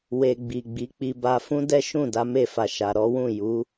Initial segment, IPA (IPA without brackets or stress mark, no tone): w